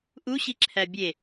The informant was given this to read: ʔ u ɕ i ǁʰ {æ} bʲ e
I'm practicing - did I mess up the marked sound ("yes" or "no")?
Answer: no